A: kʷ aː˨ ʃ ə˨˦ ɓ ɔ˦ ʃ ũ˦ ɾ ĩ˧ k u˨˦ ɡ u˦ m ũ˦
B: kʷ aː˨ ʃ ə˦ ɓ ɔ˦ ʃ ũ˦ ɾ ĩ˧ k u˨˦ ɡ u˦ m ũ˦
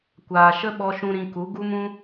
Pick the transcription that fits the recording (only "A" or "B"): B